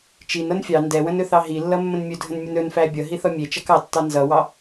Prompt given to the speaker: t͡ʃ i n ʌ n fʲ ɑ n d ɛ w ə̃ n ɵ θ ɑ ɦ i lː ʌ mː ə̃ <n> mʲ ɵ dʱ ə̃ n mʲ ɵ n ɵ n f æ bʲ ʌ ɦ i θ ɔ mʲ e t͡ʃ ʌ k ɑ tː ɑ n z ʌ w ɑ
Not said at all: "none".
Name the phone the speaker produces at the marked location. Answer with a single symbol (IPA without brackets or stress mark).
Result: n